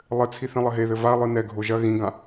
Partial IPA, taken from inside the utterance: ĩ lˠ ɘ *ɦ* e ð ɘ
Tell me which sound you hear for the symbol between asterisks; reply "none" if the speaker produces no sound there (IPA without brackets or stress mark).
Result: ɦ